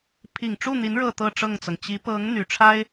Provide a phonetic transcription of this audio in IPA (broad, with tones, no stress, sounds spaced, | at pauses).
pʰ i˨˩ ŋ ʈ͡ʂ u˥˩ n̪ i˧˥ n ɻ ɤ˥˧ t̪ ɤ˥˧ ʈ͡ʂ ɤ˥˩ ŋ t͡s ɤ˩ ŋ t͡ɕ i˧˥ p ɤ˧˥ ŋ n̪ y˨˩ ʈ͡ʂʰ a˥ ɪ̯